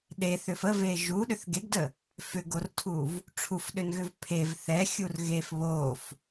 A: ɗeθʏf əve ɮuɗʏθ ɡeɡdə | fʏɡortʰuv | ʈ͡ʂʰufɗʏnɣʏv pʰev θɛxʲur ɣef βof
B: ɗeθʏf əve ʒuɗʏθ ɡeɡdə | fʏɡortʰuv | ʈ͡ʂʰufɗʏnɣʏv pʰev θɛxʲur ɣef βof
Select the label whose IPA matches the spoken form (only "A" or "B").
B